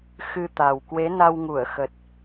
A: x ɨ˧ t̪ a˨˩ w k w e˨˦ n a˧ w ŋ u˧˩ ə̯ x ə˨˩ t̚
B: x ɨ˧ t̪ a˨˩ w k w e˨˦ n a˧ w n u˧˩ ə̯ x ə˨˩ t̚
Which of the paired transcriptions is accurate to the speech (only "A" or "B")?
A